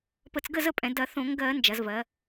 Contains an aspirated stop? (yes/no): no